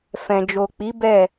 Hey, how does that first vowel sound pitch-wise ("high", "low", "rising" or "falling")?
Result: low